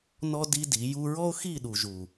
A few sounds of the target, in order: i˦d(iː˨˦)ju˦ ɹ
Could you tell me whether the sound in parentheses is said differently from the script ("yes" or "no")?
yes